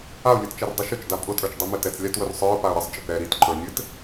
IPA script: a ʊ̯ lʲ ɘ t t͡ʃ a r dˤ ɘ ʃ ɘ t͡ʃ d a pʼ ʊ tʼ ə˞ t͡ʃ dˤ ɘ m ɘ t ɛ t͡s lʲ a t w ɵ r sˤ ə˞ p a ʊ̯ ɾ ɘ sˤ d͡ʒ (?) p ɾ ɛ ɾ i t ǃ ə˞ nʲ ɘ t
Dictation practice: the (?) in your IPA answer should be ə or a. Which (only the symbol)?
ə